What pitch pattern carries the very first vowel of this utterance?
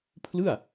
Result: falling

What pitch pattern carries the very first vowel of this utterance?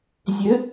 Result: rising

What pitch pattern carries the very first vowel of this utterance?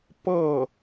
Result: falling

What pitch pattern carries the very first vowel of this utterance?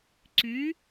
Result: rising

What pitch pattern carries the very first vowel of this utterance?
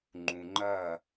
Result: low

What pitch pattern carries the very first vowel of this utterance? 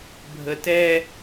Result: low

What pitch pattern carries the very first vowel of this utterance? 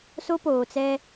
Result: high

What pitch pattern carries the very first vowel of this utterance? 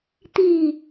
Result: falling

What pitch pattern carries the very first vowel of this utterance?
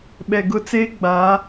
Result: low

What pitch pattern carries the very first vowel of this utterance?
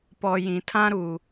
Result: low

